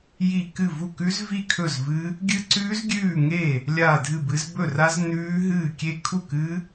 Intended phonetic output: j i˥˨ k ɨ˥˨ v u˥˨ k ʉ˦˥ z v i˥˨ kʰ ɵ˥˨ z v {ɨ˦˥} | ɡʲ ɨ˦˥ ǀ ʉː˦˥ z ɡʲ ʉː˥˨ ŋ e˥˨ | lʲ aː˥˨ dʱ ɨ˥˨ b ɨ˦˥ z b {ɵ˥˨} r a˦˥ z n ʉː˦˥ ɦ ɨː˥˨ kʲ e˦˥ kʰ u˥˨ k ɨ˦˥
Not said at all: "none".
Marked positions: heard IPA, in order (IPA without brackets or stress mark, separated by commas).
ɨ˦˥, ɵ˥˨